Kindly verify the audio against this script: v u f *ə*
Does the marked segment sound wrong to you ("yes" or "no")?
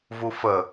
no